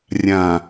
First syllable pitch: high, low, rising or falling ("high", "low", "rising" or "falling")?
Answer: low